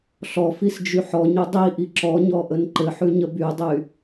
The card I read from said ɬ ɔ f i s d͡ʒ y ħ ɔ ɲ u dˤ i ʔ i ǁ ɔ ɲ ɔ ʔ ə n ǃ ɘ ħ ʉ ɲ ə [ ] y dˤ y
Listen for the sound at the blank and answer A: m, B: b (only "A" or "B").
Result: B